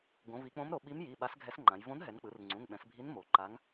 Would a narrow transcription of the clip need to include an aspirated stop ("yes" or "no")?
no